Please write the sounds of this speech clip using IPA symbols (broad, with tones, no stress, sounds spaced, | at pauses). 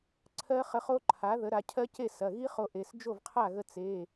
ǀʰ ɜ˦˥ χ ə˧ χ o˦˥ ǃʰ a˩˥ ð ə˩˥ ɾ a˩˧ cʰ ɜ˦˥ c e˥˩ s ɐ˩˧˩ ɣ i˦˥ χ o˧ ʔ e˩˧˩ s d͡ʒ o˥˩ v qʰ a˥˩ ɣ ə˧ t͡s e˩˧˩